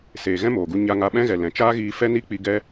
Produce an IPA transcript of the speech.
s eː˨ ɣ ɛ̃˦ m oː˨ ɡ u˧ ɲ a˧ ŋ a˧ ɓ ɛ̃˦ ɣ ɛ˨ l ɛ̃˨ t͡ʃ aː˦ ɣ iː˧ f ɛ˦ n i˦ k͡p i˧ ɡ ɛ˦

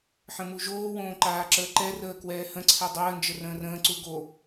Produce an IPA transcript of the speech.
ħ ə̃ m u ʒ oː w õː ǃ aː ǁ əː ǃ ɛ r əː k w ɛː h ə̃ ǀʰ ɛ dˤ əː n d͡ʒ ə r ə̃ː r ə̃ː ǀ u ɡ o

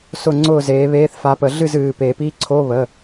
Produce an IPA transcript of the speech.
s ʊ˥˨ ŋ͡ǀ ʊː˥˨ z eː˨˥ β eː˧˥˧ θ f a˨˥ p ə˨˩˦ ɮ ɨ˥˨ z ɨː˩˧˩ p e˨˩˦ p i˧˥˧ ǀʰ o˧˥˧ β ə˩˧˩

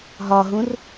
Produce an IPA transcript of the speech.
ɦ ɒ ɦ ũ r

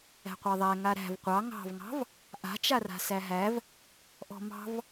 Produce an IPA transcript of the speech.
æ̤ qʷ a ðˤ æ ŋ a ɾ æ̤ v qʷ ɑ ŋ ɑ̤ v ŋ ɑ̤ v | ʔ a̤ t͡ʃ a r a̤ s æ ɦ æ v | ʔ ɔ̤ m ɑ̤ v

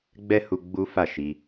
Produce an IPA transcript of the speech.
ɡ͡b ɛ˦ h u˧ ɡ͡b u˦ f a˦˨ ʃ i˧

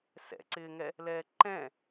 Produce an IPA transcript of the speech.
s ɛ̰ ǀ ɪː ŋ ɛ | l ɛː ǃ ɛ̃

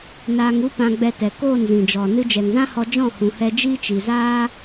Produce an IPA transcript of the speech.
n aː˧ ŋ u˦ p ã˧ ɡ͡b ɛ˧ t ɛ˨ k oː˦˨ n z ĩ˨ d͡ʒ ɔ˨ n ɨ˧ d͡ʒ ɛ˨ ŋ z ã˦ h ɔ˧ d͡ʒ ɔ̃˦˨ h ũ˨ h ɛ˧ d͡ʒ iː˦ t͡ʃ i˨ z aː˦

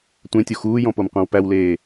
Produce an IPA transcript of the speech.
tʷ ẽ tʲ o x uː j ɔ̃ p o m qʷ ẽ w p æ w l eː

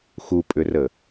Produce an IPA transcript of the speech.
x u pʼ ʏ r ə

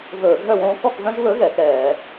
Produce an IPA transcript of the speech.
v ɵː˧˩˧ ɡʱ œ˥˨ w õː˦ k ɔ˥˨ k v œ̃˦ ʒ β ɵ˨˥ ɣ ɛ˩˧ k ɛː˧˩˧

